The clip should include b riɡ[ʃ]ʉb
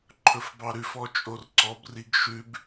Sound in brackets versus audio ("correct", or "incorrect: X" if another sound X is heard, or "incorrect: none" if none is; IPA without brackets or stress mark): correct